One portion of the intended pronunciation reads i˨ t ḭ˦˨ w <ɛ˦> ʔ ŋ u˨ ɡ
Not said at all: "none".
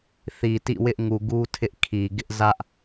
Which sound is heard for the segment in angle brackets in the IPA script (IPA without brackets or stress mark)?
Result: ɪ˦